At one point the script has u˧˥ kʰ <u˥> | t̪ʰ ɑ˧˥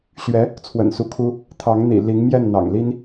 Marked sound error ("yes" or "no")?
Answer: no